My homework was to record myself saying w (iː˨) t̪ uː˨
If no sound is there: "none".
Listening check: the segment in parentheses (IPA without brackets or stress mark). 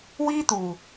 iː˦